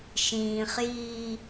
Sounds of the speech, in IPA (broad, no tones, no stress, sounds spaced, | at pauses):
ʃ ĩː χ j iː